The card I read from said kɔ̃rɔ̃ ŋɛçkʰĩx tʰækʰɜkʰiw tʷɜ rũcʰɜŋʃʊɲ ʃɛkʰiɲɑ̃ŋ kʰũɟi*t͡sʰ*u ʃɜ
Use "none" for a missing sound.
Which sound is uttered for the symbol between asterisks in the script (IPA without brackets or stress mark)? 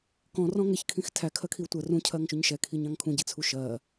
t͡sʰ